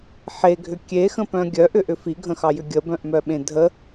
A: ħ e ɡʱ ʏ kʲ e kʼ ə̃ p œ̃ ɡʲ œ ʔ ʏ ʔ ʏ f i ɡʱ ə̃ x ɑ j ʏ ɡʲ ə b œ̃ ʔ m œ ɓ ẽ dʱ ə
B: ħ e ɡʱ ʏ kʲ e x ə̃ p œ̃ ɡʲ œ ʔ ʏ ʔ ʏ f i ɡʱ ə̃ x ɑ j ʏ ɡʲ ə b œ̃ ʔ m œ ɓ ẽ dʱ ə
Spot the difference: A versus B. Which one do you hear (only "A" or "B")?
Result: B